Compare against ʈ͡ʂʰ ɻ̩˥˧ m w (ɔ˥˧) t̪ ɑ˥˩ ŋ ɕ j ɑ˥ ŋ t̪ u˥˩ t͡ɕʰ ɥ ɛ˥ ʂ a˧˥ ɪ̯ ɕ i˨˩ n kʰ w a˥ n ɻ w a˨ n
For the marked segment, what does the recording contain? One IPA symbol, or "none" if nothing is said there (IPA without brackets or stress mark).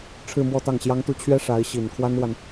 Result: ɔ˥˧